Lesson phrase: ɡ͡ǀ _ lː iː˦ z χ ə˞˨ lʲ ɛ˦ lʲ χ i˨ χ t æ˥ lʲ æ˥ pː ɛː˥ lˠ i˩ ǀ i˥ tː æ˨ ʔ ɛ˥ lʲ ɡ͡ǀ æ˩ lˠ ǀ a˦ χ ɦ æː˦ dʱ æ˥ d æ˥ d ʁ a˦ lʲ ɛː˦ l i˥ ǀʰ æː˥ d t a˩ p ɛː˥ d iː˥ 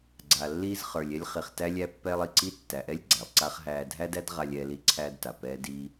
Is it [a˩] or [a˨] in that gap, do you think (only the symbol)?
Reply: a˨